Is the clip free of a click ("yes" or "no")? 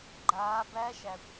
no